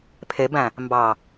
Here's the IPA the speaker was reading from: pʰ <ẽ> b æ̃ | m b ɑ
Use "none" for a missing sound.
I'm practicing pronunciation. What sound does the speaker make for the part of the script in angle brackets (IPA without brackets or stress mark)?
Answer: e